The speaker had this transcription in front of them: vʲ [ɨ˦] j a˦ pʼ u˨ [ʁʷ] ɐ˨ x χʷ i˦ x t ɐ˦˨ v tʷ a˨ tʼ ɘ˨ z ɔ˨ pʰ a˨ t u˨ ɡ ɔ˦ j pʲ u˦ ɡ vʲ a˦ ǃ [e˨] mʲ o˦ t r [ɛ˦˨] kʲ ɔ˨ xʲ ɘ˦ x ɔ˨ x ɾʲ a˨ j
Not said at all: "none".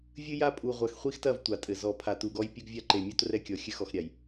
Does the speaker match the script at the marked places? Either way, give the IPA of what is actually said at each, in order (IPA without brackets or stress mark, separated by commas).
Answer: ɨ˦, ʁʷ, e˨, ɛ˦